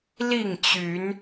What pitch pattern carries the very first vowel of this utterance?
falling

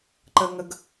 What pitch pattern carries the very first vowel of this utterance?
high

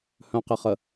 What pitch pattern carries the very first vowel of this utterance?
low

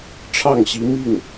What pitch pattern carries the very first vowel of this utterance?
falling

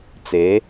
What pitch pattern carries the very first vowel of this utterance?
rising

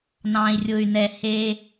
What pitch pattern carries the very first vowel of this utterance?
low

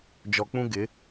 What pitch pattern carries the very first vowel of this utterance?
low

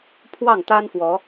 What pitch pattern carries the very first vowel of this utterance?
falling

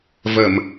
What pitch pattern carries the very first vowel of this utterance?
low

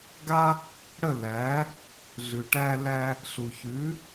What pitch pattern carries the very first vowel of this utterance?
high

